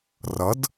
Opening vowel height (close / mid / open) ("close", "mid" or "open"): mid